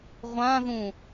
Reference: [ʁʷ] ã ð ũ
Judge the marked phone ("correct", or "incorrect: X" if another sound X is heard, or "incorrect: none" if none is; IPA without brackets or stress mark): correct